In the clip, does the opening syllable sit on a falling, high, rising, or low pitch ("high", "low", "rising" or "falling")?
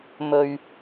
low